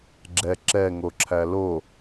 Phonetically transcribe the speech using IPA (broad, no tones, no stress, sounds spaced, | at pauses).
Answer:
ɡ͡ǁ ɛ ǁ ɛ ŋ o ǁʰ æ l o